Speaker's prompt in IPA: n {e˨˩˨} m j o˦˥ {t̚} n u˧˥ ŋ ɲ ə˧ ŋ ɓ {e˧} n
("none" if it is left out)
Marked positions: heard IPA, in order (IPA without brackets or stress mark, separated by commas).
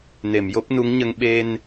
e˨˩˨, p̚, e˧